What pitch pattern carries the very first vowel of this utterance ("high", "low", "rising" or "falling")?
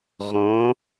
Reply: rising